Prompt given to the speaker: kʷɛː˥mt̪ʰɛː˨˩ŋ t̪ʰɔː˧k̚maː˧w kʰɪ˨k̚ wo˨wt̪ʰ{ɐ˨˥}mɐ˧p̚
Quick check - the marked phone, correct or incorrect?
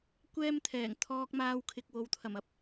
incorrect